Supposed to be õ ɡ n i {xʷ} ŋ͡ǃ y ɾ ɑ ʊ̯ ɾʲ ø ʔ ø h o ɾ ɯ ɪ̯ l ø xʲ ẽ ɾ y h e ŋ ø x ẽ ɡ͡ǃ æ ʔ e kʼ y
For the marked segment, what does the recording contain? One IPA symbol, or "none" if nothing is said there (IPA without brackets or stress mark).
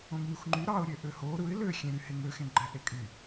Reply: xʷ